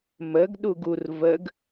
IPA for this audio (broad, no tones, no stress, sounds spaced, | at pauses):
m ə ɡ ɗ u ɡ u r v ə ɡ